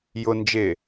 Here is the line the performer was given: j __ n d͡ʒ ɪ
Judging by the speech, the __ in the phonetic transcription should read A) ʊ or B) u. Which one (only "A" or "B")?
A